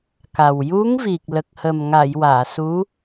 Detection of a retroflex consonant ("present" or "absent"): absent